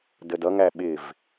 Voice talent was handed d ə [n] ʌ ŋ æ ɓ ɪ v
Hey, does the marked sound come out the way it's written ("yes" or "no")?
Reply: no